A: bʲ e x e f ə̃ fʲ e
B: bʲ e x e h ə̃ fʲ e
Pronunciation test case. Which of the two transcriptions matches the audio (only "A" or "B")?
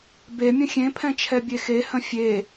B